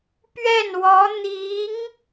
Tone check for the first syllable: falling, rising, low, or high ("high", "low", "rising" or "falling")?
falling